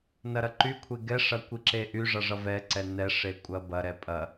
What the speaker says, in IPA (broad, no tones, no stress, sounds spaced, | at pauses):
n ɐ ɾ ɐ ǃ y kʷʰ e ɡ ɛ ʂ ɐ kʷ i ǁ e ʔ y ʐ ʌ ʐ ʌ v ɛ ǀ ɛ n ɛ ʂ e kʷʼ ɐ b ɐ ɾ ɛ pʼ ɐ